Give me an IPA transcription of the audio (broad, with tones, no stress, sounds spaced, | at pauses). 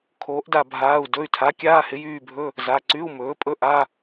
kʰ oː˩˥ ʔ d a˦˨ bʱ aː˩˧˩ u̯ d ɵ˩˧˩ y̯ tʰ a˩˥ kʲ aː˧˥˧ h ɪ˩˥ j yː˦˨ bʱ ɵ˧˥˧ | z a˩˧˩ ǀ y˧˥˧ u̯ m ɵː˩˥ pʼ ɵ˧˥˧ ʔ a˧˥˧